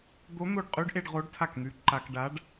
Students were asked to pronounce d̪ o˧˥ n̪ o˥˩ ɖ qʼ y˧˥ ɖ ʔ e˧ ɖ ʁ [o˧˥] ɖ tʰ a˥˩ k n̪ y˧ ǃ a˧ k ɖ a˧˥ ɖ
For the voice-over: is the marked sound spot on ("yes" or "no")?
yes